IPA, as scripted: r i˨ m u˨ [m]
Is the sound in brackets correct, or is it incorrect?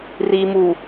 incorrect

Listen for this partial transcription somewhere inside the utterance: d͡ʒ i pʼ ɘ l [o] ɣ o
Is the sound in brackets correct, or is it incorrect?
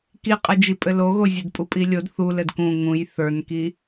correct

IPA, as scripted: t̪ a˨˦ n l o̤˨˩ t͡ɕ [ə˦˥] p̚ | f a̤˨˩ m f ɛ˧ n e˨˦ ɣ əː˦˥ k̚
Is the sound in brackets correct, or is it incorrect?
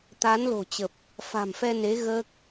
incorrect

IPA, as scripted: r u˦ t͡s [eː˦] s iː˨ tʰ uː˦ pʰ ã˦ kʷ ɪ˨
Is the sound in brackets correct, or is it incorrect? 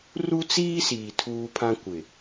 incorrect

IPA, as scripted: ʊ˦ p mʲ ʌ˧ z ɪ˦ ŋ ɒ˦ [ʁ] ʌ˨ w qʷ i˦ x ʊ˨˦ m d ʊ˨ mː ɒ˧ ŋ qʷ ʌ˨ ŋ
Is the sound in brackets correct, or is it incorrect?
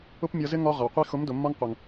correct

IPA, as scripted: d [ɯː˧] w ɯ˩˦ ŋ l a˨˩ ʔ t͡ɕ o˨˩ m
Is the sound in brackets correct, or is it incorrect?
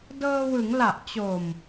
incorrect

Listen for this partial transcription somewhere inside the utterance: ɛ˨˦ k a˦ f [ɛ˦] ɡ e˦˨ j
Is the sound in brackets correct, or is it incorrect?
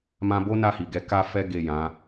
correct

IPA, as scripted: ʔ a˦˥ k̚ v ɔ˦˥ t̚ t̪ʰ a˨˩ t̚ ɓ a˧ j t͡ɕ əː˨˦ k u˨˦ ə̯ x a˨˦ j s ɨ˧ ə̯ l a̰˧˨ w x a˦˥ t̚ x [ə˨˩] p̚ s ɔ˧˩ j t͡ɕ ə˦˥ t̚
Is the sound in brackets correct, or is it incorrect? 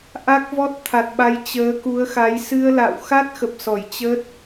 correct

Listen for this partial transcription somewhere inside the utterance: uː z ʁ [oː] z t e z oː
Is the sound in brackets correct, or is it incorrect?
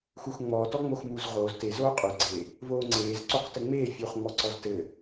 correct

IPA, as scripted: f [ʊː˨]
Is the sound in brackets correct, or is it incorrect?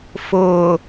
correct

